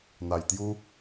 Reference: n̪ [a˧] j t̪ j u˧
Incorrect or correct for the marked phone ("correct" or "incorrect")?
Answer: incorrect